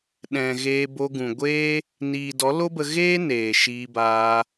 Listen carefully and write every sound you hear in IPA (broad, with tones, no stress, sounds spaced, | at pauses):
ɗ ɛ̃˨ ɣ eː˧ b o˧ ɡ ũ˨ ɡʷ eː˦ | n iː˨ d ɔ˨˦ l o˦ b ə˧ ɣ eː˦ n eː˨ ʃ iː˧ b aː˧